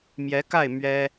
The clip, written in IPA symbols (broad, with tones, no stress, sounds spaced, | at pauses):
m j ɛ˧˥ k a˥˩ ɪ̯ m ɥ ɛ˥